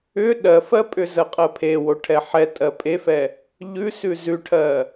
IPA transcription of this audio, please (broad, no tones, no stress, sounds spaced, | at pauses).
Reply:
ʏ ɗ ɜ f ɜ pʼ ʏ z ɜ qʼ ɜ pʰ e w o ʈʰ ɛ ħ ɛ tʼ ɜ pʼ e f ɛ | ʎ ʉ s ʉ z ʉ ʈʰ ɜ